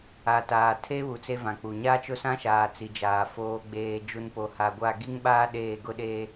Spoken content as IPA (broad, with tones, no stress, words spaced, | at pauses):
a˨taː˨ tʰe˦βu˨ t͡se˦vã˨k͡pu˨ ɲa˦t͡ʃʊ˦sã˦ʃaː˨ t͡si˨d͡ʒaː˨ foː˨ɡ͡beː˨ d͡ʒu˨npo˨ha˨ɡʷa˦˨ ɡi˦ŋɓaː˦ ɗeː˦˨ɡʊ˦ɗeː˦